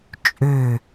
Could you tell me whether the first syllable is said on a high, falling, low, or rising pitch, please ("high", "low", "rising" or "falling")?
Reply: falling